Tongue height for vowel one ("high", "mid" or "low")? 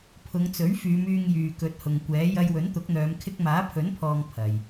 high